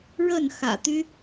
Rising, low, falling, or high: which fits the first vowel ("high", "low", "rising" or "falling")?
falling